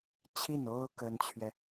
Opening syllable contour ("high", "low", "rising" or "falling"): falling